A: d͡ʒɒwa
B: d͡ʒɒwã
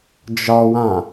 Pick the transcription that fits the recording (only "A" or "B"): B